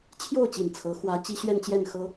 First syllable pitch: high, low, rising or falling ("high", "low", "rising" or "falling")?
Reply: falling